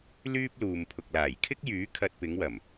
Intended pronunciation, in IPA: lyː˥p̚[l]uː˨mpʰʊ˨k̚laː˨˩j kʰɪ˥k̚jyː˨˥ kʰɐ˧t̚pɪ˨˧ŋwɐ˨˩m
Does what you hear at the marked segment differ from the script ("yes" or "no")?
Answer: no